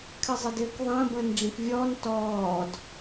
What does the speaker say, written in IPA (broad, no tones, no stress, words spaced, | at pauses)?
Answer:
kʰɨzˤɘdɘːkðˤə̃ː bə̃ːnɖ͡ʐĩkvʲɔːn tɔːd